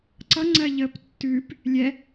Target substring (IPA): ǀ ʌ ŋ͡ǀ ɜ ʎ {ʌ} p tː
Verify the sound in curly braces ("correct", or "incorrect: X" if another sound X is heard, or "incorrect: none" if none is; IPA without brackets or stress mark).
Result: incorrect: ə